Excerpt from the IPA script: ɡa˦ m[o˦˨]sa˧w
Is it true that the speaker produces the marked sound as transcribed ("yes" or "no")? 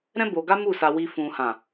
no